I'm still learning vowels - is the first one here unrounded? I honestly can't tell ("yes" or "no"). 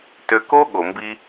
no